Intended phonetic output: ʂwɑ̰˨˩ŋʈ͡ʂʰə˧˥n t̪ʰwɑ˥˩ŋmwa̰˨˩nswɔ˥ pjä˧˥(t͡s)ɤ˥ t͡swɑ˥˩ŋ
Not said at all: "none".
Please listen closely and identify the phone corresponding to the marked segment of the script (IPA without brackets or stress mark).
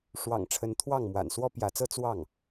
t͡s